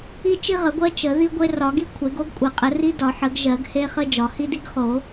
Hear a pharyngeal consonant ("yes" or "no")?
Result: yes